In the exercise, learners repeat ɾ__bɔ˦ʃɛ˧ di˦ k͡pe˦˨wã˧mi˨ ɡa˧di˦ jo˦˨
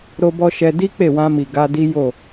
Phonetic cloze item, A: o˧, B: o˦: B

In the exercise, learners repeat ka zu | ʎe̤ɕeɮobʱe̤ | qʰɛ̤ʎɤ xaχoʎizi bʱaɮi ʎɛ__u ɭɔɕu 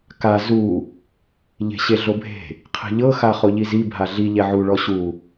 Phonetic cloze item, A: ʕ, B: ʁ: A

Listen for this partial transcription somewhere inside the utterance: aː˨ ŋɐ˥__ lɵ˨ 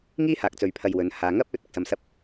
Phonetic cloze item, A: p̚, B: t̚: A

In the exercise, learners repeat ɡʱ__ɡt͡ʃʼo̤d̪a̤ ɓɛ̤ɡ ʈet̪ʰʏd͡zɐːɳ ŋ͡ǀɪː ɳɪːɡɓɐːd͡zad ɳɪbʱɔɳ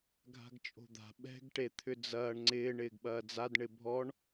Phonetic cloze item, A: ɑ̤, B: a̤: B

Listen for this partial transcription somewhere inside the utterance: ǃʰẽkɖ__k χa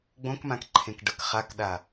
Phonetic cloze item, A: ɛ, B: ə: B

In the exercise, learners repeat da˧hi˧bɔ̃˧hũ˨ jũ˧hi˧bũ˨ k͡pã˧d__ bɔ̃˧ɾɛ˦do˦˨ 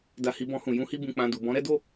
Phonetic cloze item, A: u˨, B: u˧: A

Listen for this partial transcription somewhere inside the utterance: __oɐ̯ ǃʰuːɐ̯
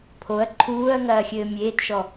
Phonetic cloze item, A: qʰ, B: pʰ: B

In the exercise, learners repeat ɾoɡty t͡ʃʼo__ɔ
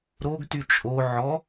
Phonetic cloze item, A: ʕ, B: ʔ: A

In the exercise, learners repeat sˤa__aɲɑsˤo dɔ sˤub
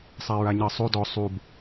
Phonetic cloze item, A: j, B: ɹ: B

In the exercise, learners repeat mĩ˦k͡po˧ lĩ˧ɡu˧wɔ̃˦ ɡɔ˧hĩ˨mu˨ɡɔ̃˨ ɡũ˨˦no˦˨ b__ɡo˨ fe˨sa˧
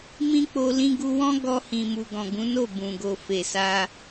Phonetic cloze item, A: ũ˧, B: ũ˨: B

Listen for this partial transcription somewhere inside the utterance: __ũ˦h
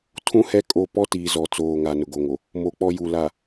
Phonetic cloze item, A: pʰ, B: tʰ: B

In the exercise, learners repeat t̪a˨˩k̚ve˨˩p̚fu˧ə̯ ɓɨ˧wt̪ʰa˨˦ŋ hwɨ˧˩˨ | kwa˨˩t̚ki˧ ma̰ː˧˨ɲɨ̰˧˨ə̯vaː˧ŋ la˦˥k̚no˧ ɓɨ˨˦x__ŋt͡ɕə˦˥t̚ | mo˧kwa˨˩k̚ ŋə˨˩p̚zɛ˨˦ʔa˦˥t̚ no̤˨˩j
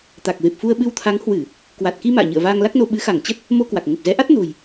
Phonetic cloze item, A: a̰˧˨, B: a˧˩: B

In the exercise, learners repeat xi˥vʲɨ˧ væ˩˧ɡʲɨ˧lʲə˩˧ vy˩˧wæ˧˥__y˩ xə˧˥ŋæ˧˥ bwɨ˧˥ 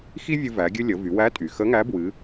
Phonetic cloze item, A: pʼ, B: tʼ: B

